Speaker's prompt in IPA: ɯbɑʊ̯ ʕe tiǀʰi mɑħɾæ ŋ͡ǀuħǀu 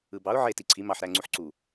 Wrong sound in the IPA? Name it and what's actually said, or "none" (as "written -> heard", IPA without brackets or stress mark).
none